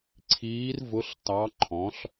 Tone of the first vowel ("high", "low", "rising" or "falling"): rising